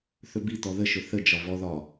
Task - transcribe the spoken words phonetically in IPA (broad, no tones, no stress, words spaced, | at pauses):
θɵbi t̪ɔðəʃɵ θə d͡ʒɒvɔðɒ